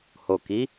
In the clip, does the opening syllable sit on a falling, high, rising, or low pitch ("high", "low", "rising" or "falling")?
low